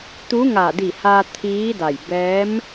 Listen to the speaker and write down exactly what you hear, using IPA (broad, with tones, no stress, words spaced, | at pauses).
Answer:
t̪u˧˥ŋa˧˩ di˧˩haː˧ t̪ʰiː˧˥da˧˩j bɛː˧˥m